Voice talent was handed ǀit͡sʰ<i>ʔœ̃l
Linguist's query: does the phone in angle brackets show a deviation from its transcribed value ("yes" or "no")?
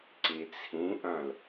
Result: yes